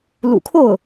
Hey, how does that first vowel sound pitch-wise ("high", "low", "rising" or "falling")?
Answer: low